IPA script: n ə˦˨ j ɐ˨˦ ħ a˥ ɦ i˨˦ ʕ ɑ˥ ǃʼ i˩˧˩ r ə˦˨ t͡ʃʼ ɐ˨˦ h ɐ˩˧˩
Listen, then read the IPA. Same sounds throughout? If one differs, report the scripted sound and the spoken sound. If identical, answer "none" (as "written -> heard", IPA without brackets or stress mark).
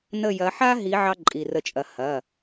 none